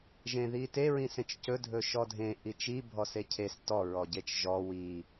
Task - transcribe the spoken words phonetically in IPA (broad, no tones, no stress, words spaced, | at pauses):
ʒẽðite ɹĩsẽt͡ʃcɵ dʱɵʃɔdʱẽ ʔit͡ʃi bʱɔsecʰes tɔ ɹɔɟet͡ʃʒɔ wi